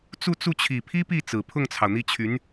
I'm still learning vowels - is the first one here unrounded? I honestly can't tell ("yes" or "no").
no